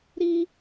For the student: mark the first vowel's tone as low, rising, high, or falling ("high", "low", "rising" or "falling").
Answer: high